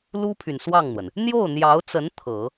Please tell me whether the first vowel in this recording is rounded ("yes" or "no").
yes